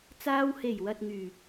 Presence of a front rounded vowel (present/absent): present